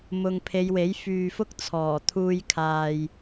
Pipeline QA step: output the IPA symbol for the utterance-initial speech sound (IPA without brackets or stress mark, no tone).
m